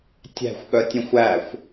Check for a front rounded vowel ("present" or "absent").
present